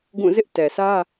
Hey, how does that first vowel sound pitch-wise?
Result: falling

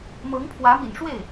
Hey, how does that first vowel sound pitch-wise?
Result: rising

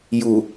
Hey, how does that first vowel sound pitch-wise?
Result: low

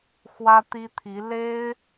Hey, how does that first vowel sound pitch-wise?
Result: high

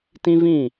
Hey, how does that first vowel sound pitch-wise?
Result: high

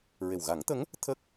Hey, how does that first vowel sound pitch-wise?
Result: low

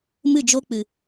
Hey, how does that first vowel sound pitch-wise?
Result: falling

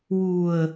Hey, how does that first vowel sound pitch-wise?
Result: low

